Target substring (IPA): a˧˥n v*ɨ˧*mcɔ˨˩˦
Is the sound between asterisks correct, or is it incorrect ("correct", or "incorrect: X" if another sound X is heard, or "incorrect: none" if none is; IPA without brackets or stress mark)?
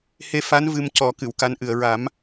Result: correct